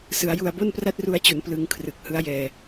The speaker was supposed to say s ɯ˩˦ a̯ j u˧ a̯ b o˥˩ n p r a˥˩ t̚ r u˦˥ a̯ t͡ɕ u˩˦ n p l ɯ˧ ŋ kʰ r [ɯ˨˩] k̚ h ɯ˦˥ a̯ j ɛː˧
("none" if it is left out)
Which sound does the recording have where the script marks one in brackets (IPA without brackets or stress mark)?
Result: ɯ˨˩